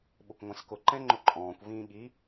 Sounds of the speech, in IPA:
ɓʊkʷŋʷɛ̃skʊ ǃɛ̃ŋ͡ǃʊǃʼɔ̃ːkʷ vĩːɠi

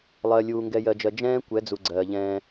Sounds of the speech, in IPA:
lˠɜ˨ lʲuː˨ŋɡɛ˨jɜ˨d͡ʒɜ˨ d͡ʒɛ̃ː˦kʷɛ˨˦d͡zu˨ ɡ͡ǀɜː˨ʎɛ̃ː˦

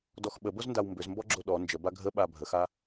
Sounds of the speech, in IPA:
dɔxɓəbozndaw mbʏzmbɔɡ͡ǁo ɗɔ nd͡ʒəba ɡʱəɓa bʱəxa

